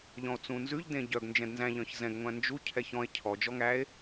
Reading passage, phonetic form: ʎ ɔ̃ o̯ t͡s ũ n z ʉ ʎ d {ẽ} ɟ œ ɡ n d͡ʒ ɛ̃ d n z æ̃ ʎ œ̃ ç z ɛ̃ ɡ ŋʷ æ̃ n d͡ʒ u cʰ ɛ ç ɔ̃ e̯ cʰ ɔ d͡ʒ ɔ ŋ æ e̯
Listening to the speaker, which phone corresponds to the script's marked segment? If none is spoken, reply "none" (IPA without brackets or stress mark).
ẽ